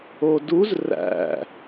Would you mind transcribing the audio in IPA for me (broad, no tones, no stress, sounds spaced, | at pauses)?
o d u z r æ̰